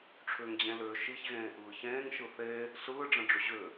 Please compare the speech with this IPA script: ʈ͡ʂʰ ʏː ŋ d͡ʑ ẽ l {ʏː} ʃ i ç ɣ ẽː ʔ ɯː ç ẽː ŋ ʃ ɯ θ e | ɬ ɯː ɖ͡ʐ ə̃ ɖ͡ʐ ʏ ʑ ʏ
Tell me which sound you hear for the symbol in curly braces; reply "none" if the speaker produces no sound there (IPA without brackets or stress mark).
ʏː